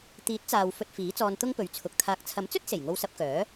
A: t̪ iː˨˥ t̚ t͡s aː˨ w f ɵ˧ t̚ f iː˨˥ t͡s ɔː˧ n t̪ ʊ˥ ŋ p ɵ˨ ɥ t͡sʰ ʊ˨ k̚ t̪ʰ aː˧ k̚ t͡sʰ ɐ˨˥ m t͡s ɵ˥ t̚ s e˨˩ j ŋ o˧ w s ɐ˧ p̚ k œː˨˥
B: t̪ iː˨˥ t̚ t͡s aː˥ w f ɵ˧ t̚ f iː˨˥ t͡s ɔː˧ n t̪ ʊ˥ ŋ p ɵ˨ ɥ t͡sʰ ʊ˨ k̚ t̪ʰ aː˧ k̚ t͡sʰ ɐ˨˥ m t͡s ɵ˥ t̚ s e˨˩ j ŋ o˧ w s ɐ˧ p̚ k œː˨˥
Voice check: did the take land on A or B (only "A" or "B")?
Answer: A